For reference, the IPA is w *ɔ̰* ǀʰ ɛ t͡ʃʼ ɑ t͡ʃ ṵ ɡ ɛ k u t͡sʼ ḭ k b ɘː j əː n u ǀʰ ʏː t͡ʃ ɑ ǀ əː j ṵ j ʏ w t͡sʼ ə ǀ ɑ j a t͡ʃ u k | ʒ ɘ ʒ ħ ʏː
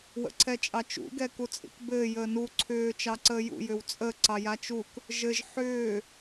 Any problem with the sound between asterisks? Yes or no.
yes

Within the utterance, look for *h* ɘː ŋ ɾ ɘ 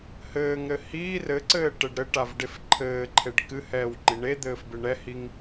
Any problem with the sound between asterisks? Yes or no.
no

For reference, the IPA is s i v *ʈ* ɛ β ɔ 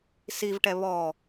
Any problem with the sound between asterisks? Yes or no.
no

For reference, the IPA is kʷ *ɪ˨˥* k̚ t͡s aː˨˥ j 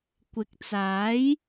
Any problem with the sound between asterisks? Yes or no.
no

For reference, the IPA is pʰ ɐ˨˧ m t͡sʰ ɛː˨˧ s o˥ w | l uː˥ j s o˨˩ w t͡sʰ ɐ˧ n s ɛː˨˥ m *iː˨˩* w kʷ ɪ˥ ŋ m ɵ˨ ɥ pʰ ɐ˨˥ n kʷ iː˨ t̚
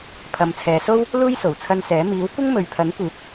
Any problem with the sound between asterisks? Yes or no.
yes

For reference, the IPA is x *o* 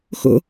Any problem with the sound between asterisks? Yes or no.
yes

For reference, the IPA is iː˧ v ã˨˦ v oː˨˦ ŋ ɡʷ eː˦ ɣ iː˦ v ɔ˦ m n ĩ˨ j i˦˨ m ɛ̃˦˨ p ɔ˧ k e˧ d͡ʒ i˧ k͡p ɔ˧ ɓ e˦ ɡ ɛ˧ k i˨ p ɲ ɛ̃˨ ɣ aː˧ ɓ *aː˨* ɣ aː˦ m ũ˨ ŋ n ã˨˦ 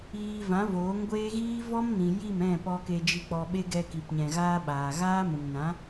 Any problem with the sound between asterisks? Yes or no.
no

